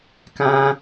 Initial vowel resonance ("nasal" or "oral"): nasal